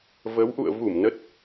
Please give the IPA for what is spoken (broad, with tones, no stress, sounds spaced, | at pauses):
v ə˨˦ w ʔ ṵ˧˨ ə̯ v u˧˩ m n ə˦˥ t̚